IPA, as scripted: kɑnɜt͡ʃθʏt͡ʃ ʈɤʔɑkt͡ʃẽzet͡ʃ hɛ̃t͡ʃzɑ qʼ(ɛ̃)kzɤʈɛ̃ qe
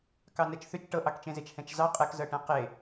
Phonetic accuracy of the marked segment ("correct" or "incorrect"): incorrect